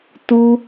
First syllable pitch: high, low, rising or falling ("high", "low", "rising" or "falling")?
high